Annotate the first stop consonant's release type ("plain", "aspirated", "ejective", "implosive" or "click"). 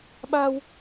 implosive